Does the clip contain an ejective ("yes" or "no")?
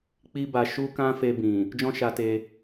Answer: no